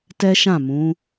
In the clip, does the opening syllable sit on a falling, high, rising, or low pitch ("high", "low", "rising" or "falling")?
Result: high